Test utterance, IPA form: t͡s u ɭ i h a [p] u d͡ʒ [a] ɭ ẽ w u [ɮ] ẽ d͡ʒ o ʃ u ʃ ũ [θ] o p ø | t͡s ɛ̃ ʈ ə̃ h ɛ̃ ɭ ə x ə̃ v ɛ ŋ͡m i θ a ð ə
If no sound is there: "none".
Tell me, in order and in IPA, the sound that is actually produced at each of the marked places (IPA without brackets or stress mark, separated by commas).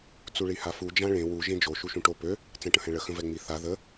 f, ã, ʒ, ʈ